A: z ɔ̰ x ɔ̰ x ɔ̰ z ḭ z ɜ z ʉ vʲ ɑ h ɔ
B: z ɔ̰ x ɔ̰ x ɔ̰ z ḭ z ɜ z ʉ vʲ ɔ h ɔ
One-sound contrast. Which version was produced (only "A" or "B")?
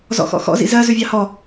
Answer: A